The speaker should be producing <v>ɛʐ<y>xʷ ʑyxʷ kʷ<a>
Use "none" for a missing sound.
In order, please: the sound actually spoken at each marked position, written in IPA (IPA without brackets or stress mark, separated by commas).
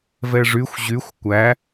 v, y, æ